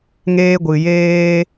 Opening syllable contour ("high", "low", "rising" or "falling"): high